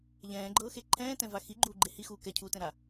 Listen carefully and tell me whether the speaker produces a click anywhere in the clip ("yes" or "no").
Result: yes